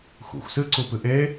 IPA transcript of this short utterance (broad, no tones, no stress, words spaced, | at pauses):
xʷḭxʷ sɨǀu pɨʔe